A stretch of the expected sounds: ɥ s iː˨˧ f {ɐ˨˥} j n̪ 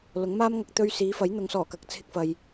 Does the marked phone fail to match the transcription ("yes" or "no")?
no